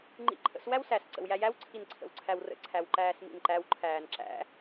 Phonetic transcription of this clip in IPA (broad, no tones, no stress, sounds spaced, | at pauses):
ŋ͡ǃ ḭ ǃʰ ə̰ s w æ w s æ s ǀ ə̰ w j æ j æ w ǀʰ i n ǀʰ ə̰ w ǀʰ æ w r ə̰ ǀʰ æ w ǃ æː s m ḭ n ǃ æ w ǃʰ æː n ǁ æ̰